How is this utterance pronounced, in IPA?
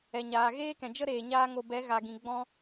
ɛ˨ ɲ aː˨ ɣ eː˦ k ɛ̃˨ d͡ʒ ə˦ ɾ eː˨ ɲ aː˦ ŋ o˧ b ɛ˨˦ ɣ a˨ ɡ ĩ˨ ɡ͡b ɔ̃˧

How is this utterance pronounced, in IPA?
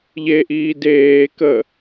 ʎ e ʔ iː d eː k ə

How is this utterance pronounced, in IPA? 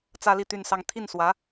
t͡s ä˥ l i˥˧ t̪ y˥˧ n s ɑ˥˧ ŋ t̪ʰ i˥˩ n s w ä˧˥

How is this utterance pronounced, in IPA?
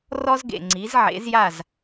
r ɔ˥ z ɡ ḛ˩ ŋ͡ǀ i˩˥ z ʕ ḛ˩˥ z j a˥˩ z

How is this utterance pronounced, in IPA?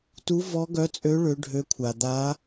t u˧˥ v ɔ˧˥ ɡ œ˧˥ t͡sʼ ø˧˥ ɭ ø˧˥ ɖʱ ø˧˥ kʷʰ a˨ d̪ a˧˥

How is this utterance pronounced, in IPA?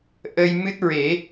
ʔ ə˧ j m ɨ˦˥ t̚ ɹ e˨˩˦

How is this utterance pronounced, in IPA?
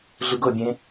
ɮ ɯ ɡ ɤ bʲ ẽ

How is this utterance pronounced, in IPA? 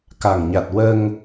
k a˨˩ ŋ ɲ a˨˩ t̚ w ə˧ ŋ

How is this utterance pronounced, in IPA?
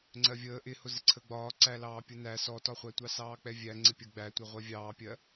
ŋ͡ǀ ɜ vʲ əː ʔ ɪ h ʊ z ɪ ǀʰ ə ɡ͡b ɒː ǀ æ l ɑː pʲ ʊ n æ s ɔ t ɒ χʷ æ tʷ ɑ s ɑː k͡p ɛ vʲ æ ŋ͡ǀ ɪ pʲ ə ɡ͡b æ tʷ ɛ ʁʷ ɛ vʲ ɑː pʲ ɜ

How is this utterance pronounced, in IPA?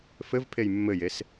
f ɘ v pʰ e j mː ɘ j e s

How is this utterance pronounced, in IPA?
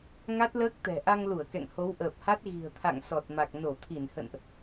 ŋ a˦˥ t̚ l əː˦˥ k̚ t̪ ɛ̤˨˩ ʔ a˧ ŋ l u˧˩ ə̯ k ɛ̰˧˨ ŋ h o˨˦ w ʔ əː˨˩ p̚ h a˦˥ t̚ ɣ i̤˨˩ ə̯ t̪ʰ a̰˧˨ ŋ s ɔ˨˩ t̚ m a˨˩ k̚ n o˧˩ t̪ʰ i˧˩ n h ə̰˧˨ n ʔ

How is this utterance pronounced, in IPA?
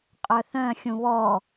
qʼ œ θ œ̃ xʲ ũ β ɔ

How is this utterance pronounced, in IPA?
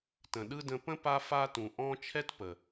t ə̃˨ ɗ ɯ˥ d ə̃˦ p ə̃˥ p a˦ f a˥ t ũ˨ ʔ ɔ̃˥ t͡ʃʰ ɛ˥ t p ə˩

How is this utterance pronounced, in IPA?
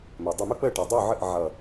m ɜ˩ dˤ ʊ˧˩ m ʊ˦ k͡p ə˧˩ ʈ ʌ˩ dˤ u˧˩ ʕ ə˧˩ ʔ ʕ ʌ˧˩

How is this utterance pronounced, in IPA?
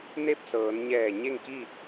n e˥˨ p̚ s ɤː˩˧ n ɲ ɛː˧˩ ɲ e˥˨ ŋ k i˥˨

